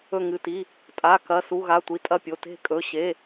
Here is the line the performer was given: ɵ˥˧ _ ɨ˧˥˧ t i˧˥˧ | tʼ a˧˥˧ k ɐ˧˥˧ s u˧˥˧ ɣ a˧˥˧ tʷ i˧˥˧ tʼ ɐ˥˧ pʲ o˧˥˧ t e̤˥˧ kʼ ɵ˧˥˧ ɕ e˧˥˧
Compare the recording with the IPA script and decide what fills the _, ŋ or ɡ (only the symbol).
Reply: ŋ